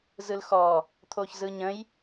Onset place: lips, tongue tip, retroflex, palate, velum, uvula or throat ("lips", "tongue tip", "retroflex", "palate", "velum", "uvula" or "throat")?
tongue tip